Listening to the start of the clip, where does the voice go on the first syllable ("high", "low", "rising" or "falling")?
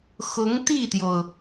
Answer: rising